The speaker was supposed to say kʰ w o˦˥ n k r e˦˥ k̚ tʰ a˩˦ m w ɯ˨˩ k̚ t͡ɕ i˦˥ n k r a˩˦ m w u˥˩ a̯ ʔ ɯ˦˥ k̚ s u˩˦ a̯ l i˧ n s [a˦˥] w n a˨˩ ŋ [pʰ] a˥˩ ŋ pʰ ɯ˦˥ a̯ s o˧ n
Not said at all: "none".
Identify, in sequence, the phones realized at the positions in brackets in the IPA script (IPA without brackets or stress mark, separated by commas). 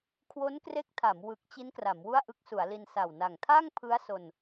a˨˩, tʰ